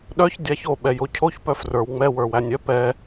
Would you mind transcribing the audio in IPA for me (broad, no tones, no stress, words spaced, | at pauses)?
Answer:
ɗœç dʲaçoɓɛ jocʰoç pœfrə˞w ŋ͡mɛ wə˞wænʲœ pɛ